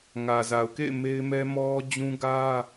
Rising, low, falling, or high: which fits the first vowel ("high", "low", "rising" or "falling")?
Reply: low